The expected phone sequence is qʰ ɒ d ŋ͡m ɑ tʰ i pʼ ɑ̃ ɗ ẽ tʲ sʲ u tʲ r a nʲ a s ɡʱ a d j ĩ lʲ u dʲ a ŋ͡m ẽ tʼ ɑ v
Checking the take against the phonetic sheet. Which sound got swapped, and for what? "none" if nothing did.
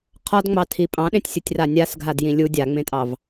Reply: none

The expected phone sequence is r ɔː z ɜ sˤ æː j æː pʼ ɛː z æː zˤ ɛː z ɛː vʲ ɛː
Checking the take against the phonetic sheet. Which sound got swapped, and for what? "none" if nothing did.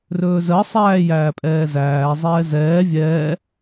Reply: ɔː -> ɵː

